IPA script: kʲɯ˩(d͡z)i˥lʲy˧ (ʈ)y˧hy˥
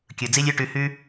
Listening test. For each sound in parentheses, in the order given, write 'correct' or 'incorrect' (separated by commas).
correct, correct